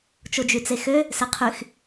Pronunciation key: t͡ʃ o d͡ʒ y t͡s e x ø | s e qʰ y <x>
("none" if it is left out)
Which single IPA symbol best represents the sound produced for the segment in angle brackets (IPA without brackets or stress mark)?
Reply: x